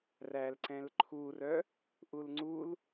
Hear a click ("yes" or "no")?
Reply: yes